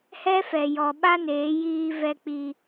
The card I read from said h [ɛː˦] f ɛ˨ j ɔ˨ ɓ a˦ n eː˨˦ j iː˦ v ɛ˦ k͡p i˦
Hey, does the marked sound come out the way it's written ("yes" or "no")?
no